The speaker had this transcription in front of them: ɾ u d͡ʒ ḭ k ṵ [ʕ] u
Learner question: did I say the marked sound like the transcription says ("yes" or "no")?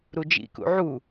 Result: yes